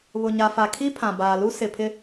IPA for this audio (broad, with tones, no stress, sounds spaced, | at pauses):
β ʊ˨ ɲ a˨ f a˨ kʰ i˦ pʰ ã˨ b aː˨ l u˦ s ɪ˨ pʰ ɪ˦